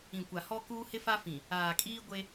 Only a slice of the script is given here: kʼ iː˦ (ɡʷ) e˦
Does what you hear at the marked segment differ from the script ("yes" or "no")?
no